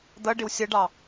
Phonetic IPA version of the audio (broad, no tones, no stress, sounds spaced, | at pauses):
d̪ ʌ ɖ ɪ w sʲ ʌ ɖ ɑ